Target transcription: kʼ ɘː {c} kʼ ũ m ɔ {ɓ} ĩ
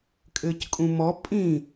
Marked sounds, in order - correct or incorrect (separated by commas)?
correct, incorrect